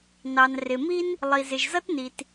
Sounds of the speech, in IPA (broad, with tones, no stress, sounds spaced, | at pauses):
n ɑ˩ n r ɪ˩ m i˥ n | lˠ i˩ z ɪ˩ ʒ z ʌ˥ t n i˩ t